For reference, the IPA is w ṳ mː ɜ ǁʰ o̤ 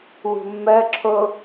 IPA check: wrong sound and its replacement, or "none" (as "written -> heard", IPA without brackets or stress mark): o̤ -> o